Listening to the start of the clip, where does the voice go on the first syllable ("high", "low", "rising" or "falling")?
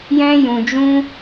high